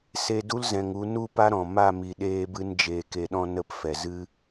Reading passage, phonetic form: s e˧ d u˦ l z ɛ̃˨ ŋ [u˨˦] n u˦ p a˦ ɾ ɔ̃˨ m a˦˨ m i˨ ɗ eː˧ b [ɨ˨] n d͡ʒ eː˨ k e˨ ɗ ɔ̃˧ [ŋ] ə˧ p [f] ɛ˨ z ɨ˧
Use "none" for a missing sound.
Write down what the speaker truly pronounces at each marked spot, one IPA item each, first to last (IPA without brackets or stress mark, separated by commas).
u˨˦, ɨ˧, n, f